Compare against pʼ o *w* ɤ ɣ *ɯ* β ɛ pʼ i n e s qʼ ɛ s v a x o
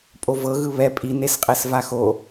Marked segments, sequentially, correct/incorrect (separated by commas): incorrect, correct